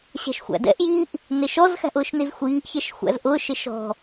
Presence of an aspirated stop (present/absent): absent